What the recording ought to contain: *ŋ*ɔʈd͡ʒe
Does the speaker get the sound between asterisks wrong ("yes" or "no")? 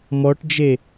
yes